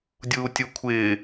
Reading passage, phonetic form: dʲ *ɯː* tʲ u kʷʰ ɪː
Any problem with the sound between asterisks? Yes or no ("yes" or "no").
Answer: yes